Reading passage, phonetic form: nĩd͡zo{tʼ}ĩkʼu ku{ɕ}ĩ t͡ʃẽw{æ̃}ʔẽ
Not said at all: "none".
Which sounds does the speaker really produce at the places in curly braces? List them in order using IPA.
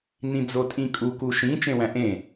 tʼ, ʃ, æ̃

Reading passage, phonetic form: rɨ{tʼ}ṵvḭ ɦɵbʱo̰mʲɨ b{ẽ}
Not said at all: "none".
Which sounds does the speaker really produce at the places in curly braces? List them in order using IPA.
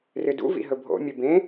d, ẽ

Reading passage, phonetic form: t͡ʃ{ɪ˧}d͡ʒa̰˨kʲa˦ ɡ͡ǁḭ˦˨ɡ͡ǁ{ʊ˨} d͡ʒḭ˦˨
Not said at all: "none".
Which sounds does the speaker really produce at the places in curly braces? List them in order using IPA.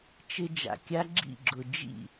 ɪ˧, ʊ˨

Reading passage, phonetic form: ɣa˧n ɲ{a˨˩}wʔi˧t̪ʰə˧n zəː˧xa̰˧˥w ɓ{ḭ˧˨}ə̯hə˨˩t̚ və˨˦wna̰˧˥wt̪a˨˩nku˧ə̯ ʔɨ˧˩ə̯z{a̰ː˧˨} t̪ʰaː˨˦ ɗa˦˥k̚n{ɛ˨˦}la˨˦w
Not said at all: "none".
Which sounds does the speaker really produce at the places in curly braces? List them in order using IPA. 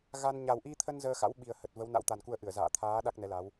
a˨˩, i˨˩, a̰ː˧˨, ɛ˨˦

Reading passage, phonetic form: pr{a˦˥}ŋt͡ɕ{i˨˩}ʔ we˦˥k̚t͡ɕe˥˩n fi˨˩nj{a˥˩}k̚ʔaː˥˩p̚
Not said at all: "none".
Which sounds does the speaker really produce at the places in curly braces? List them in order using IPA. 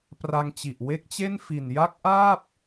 a˧, i˨˩, a˦˥

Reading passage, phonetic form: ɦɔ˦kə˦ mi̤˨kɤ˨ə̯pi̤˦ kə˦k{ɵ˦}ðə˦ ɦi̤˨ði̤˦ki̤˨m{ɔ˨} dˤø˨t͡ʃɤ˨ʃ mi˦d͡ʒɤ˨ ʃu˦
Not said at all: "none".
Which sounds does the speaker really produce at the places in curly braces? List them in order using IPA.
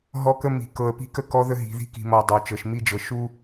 ɔ˦, ɔ˨

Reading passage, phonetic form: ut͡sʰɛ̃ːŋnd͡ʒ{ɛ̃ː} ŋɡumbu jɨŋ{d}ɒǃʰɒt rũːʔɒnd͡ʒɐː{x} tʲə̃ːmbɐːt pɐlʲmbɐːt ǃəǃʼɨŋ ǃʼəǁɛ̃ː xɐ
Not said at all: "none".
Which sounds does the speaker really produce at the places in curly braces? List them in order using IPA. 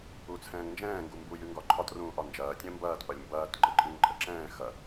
ɛ̃ː, ɡ, none

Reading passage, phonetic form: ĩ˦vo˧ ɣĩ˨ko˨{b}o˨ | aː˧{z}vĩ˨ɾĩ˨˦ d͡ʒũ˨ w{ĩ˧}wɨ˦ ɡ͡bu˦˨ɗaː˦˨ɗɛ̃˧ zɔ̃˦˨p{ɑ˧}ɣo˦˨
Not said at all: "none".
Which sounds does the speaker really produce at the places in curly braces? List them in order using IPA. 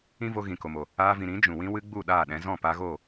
m, none, ĩ˦, a˧

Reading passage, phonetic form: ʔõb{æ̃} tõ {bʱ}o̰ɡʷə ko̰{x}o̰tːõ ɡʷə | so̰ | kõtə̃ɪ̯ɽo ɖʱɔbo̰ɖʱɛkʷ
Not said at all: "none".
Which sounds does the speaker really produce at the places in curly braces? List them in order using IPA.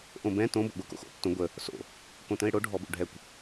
ɛ̃, b, x

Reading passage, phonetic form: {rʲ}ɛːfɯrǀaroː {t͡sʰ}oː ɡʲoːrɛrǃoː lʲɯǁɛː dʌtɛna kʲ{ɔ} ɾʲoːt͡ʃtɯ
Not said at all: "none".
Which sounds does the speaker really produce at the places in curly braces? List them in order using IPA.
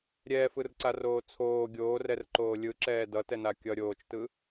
ɾʲ, t͡sʰ, ʌ

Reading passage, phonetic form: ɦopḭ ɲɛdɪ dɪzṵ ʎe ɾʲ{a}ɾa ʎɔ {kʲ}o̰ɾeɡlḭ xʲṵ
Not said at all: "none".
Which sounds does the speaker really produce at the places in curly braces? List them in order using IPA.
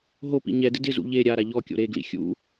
a, kʲ

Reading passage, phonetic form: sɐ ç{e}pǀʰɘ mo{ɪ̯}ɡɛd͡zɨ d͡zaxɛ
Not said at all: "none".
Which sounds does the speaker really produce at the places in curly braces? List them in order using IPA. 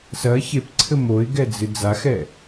e, ɪ̯

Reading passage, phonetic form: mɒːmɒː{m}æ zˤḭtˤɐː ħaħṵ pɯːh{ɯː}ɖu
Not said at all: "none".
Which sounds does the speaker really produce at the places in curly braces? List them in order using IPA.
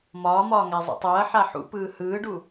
ŋ, ɯː

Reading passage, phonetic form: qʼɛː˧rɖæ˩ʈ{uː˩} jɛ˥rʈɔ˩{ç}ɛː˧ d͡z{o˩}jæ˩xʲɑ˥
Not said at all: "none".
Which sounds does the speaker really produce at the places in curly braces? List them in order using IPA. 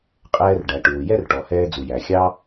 uː˩, h, u˩

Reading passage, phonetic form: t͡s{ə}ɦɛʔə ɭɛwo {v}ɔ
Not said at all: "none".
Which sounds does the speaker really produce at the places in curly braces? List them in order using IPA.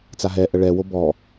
a, b

